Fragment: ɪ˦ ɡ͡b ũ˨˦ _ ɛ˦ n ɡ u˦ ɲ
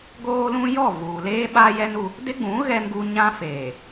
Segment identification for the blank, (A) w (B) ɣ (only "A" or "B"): B